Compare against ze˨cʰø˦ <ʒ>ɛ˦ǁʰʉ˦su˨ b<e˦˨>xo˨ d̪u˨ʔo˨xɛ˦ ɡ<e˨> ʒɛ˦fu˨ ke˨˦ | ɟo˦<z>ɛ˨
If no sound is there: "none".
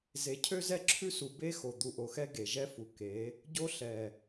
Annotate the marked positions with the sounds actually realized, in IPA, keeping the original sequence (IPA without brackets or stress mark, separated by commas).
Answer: z, e˦, e˨, ɬ